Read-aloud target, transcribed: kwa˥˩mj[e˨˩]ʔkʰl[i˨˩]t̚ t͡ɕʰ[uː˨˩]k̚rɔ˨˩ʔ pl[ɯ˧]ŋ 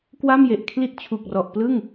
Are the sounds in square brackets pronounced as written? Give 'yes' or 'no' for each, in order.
yes, no, no, no

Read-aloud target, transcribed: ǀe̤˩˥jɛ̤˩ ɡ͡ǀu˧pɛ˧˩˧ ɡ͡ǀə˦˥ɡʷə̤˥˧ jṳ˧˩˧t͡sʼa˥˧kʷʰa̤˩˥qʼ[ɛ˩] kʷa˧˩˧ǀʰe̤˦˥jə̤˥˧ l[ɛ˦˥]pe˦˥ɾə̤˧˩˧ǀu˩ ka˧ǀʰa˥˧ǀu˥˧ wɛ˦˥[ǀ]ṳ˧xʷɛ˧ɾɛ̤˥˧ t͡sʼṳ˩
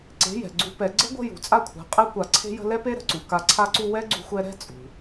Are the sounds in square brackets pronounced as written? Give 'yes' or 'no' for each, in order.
no, yes, no

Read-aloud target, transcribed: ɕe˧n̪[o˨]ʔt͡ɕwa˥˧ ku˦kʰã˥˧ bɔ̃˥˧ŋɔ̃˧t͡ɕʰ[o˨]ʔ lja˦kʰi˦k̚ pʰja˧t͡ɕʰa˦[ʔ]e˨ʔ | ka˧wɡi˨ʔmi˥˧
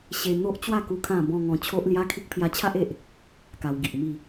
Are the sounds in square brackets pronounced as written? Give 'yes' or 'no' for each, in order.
no, no, yes

